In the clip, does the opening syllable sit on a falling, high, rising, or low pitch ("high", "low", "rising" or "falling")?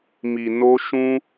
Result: low